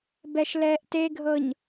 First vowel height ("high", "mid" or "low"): mid